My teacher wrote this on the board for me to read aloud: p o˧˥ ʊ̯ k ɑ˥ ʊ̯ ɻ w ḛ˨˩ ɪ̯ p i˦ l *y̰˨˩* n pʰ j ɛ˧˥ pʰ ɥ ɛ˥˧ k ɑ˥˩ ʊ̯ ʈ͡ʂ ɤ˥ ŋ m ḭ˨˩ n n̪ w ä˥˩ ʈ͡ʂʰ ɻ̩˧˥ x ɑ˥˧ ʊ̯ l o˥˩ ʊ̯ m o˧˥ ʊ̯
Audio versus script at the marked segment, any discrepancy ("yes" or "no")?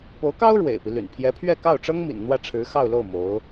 no